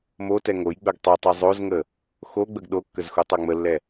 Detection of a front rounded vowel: present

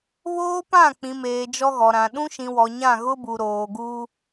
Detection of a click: absent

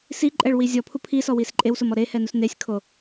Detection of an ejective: present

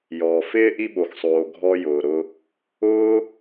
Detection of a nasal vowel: absent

